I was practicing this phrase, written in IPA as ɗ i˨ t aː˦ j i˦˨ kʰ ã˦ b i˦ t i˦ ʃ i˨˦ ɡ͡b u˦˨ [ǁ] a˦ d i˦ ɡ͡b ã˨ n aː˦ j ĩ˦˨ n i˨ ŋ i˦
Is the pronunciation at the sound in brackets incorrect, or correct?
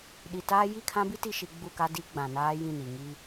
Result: incorrect